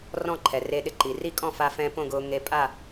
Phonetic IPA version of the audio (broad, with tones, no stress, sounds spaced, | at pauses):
r ɔ̃˥˧ ǃʰ ɛ˩ r e˧ ɗ ɪ˧ ǃ i˩ r i˥˧ kʼ ɔ̃˥˧ f a˧ f ɛ̃˧ p õ˥˧ ɡ ʊː˧ ŋ e˧ pʼ a˥˧